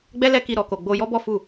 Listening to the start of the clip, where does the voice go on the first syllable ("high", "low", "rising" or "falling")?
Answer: high